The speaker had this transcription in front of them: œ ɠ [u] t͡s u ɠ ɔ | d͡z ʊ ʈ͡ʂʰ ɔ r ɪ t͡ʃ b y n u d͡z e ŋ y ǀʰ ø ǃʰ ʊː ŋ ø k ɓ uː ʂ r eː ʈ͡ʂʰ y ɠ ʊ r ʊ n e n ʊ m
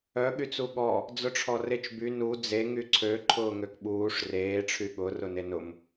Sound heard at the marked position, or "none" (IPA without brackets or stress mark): y